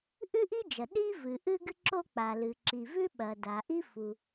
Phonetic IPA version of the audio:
ʔ ʉ˥ ʔ i˥ d͡ʒ ɐ˩ ɗ i˥ v ɨ˩ ʔ ɨ˥ ɡ ɨ˥ ǁ o˥ k͡p a˩ l ɨ˩ ǁ i˩ v ʉ˥ ɓ ɐ˩ d a˩ ʔ i˥ f u˩

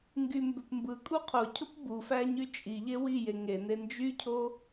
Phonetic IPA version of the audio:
ŋ ɡ y m b ø p m b ɯ kʼ u qʰ o cʰ o p b u f æ ɲ y t͡ʃʼ i ʎ e w i j e ŋ e n e n d͡ʒ y cʰ o

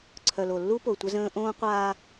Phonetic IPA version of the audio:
ǀʰ œ˨ l o˨ lː u˦ p o˨ tʷ ə˦ z ə̃ː˦ ʔ õː˦ qʷ aː˦

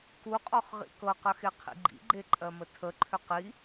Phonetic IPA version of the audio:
k u qʼ ɔ χ ʁ ḭ k ɤ q ə x e qʰ ḭ ɡ͡ǃ ḭ ɡ͡ǃ e ǃʼ ɜ m ə tʰ ə ǃʰ ʏ q i

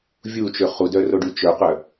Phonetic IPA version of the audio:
vʲ u t͡ʃ ø χ u d œ r o ɖ y t͡ʃ œ q œ

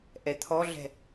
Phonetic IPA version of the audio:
ʔ ɛ t̪ʰ ɔ ɮ ɛ̤

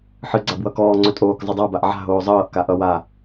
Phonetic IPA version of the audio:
ħ ɨ ɡ͡ǀ a b w ʌ k ɔː ŋ͡ǀ ɵ tʼ oː k zˤ ɨ dˤ a b a ʔ ʕ a̤ ɦ oː zˤ ɤː ʔ k a ʔ ʌ w a

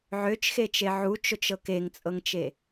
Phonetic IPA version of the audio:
ʕ ø t͡ʃ x e t͡ʃ e ʕ u t͡ʃ o t͡ʃ ɤ k e ŋ t͡sʼ ɤ ŋ t͡ʃ e

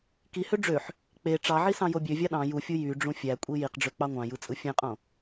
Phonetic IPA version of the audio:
k i h ø ɖ͡ʐ ø ħ | k͡p e ʈ͡ʂ ɑ ʕ i s ɑ̃ j o bʲ ø vʲ ɑ ɗ ɑ̃ j u fʲ u j y ɖ͡ʐ ũ fʲ æ kʷʼ i j i q ɖ͡ʐ ø k͡p ɑ ŋʷ ɑ̃ j ɯ t͡sʼ ɯ fʲ ẽ qʼ õ

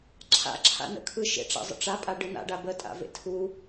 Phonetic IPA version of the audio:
ǁʰ a̰ ǁʰ a̰ n ə̰ kʰ ɯ ʃ ḛ ʈ͡ʂ a̰ zˤ ə̰ ʈ͡ʂ a pʼ a ɖ ɯ n a̰ ɖ a b ə tʼ a̰ v ḛ tʰ u

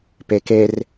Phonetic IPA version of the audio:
p e k e r

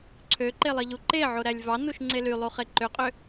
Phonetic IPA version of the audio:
ǀʰ ø ǃ e lˠ i ʎ u ǃ e ʕ o ɾ æ lʲ v ɑ n u ʃ ŋ͡ǀ e l y lˠ u χ e ǃ ø qʼ ø

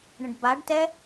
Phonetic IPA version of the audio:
ɳ ə̃ ɖ b a ɖ t ɛ

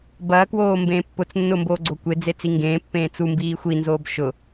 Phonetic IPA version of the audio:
b ɐː k w oː m b ẽː pː ʊ t͡s nː ʊ m b oː ɡ͡ǀ o kʷ e d͡z e t͡s i ŋ ɡ ẽː pː ẽː t͡s u m b iː xʷ i n z oː b ʃ ʊ

